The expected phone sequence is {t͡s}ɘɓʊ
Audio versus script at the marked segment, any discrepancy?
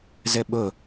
yes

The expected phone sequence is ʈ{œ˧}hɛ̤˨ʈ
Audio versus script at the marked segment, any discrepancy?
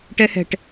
yes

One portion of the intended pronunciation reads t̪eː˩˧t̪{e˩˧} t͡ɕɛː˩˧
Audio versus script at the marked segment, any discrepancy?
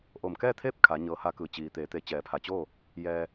no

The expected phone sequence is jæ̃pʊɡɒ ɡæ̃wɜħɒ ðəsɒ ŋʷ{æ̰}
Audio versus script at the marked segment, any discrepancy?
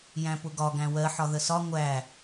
yes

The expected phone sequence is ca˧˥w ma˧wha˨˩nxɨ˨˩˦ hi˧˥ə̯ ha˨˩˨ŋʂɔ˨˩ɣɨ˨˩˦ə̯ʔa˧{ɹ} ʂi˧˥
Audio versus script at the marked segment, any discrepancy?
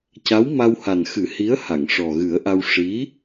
yes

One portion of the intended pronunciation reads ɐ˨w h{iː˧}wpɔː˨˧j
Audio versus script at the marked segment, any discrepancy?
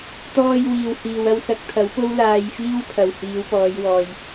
yes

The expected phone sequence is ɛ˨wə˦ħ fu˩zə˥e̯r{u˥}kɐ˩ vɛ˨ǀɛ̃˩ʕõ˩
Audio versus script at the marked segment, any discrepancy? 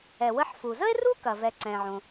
no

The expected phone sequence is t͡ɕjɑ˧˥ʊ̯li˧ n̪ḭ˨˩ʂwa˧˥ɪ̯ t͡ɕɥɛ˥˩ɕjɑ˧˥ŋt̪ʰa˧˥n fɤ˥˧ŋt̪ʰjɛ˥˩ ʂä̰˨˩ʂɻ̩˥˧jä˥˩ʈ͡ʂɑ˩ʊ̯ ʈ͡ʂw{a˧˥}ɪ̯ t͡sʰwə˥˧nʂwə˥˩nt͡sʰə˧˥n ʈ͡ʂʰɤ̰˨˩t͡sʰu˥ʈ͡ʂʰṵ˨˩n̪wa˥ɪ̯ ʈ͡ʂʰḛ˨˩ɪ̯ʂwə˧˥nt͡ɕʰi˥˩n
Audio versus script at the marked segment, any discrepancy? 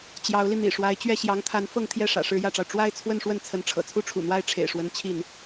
yes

